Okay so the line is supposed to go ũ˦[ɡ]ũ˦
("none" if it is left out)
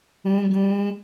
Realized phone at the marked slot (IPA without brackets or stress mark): ɡ